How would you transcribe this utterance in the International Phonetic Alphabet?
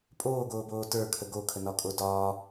pʼ oː ɡ oː b oː t ə˞ kʰ ə ɡ o kʰ ə n ɒ kʼ o d ɒː

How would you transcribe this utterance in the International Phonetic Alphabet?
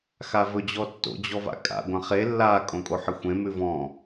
x a v ɵ d͡ʑ ɔ tː o̰ d͡ʑ ɔ v a̰ kʼ a̰ ɡʷ ã χ e lː a kʼ õ kʼ o ħ ɘ xʷ ẽ m ʉ v ɔ̃

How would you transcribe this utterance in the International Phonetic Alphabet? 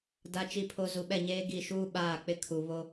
d a˨ t͡ʃ i˨ pʰ o˨ z u˨ ɓ ɛ˦˨ ɲ eː˦ ɡ i˦˨ ʃ uː˦ ɓ aː˦˨ k͡p ɪ˦ kʰ u˨ β o˦

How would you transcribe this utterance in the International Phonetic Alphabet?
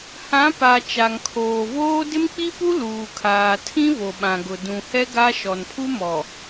h ã˨˦ p a˨ t͡ʃ a˨ ŋ kʰ oː˨ v oː˦ d ɪ˦ m k͡p i˦ p u˦ l uː˨ kʰ aː˨ tʰ ĩ˦ v o˨ ɓ ã˨ ɡ ʊ˨ d ũ˨ h ɛ˦ ɡ a˦ ʃ ɔ˨ n pʰ u˦ m ɔ˨

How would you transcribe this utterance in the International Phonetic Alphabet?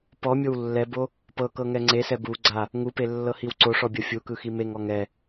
p ɔ mʲ o w lː ɛ b o | p ɤ k ɤ ŋ ɛ ŋ͡ǀ e s ɛ b u ɡ͡ǀ a | ŋ u p e lː ɤ h i w ǀ o ʂ ɔ bʲ ɤ fʲ u k ɯ x i m e ŋ ɔ ŋ ɛ

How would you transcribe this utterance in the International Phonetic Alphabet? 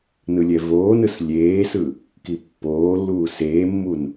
n ɯ lʲ ɛ v oː n ɯ s lʲ eː s ɯ | k i pː oː lː uː s eː mː u n

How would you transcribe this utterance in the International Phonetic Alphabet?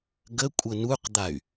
ɡ ə kʷʼ ə n u q d̪ a y̯

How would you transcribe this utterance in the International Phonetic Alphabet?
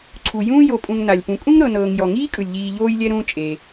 ǀʰ u˩ j ũː˦ j o˨ pʼ ũ˨ ŋ n a˩ lʲ p ũ˨ kʼ ũ˥ ŋ ɾ ɤ˨ n ɤː˨ ŋ j ɔ˩ ŋ iː˥ kʼ ɯ˩ lʲ ʎ iː˨ ʎ oː˦ j lʲ ɛ˦ ɾ ũː˦ t͡ʃʼ e˨

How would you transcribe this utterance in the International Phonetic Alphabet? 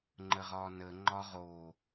ŋ͡ǃ ə ʁ ɒ n ə ŋ͡ǃ ɒ ʁ o

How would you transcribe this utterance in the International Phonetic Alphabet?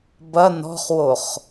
b ɐ n ɔ̤ χ w o χ

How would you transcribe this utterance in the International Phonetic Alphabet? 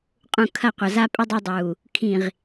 qʼ ũ˨ kʰ ɐ˦˨ qʷ ɐ˨ z a˦ pʼ ɘ˦ dˤ ɛ˦ dˤ uː˨ | kʰ ĩ˨ ʁ

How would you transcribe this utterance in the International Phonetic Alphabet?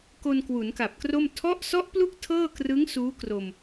k o˧ n k w u˩˦ n k a˨˩ p̚ k r o˥˩ m tʰ ɔ˦˥ ʔ s ɔ˦˥ ʔ p l u˥˩ k̚ tʰ ɤː˥˩ k r ɯ˦˥ ŋ s uː˦˥ k r o˧ m

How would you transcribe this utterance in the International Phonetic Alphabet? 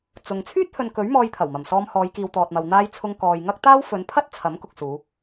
t͡s ʊ˨ ŋ t͡sʰ yː˥ t̚ h ɵ˨ n k ɵ˨˥ ɥ m ɔː˧ j t̪ʰ ɐ˨˩ w m ɐ˨˩ m s ɔː˧ m h ɔː˨˧ j k iː˨ w t̪ ɔː˨ t̚ m ɐ˨ w n̪ aː˧ j t͡sʰ ʊ˧ ŋ k ɔː˨ j ŋ ɐ˥ k̚ t̪ aː˥ w f ɵ˨˧ n pʰ ɐ˥ t̚ t͡sʰ ɐ˨˥ m k ʊ˨ k̚ s uː˨˧

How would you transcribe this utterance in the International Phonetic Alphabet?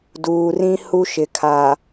d uː˨ r ĩ˦ h u˦ ʃ ɪ˨ kʰ a˨

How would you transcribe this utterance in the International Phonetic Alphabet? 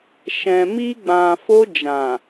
ʃ ɛ̃˨ m i˧ ɡ͡b ã˨ f o˧ d͡ʒ ã˨

